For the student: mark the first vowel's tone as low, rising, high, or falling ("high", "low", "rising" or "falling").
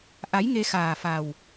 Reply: rising